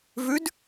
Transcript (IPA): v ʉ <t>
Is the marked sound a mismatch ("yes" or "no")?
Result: yes